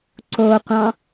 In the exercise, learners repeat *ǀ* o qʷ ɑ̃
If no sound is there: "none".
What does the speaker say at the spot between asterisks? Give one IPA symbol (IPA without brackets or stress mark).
ǀ